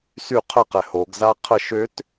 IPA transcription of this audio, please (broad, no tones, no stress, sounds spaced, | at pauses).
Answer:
s y qʰ ə q ɛ h o ɡ z a qʰ ə ʃ ø t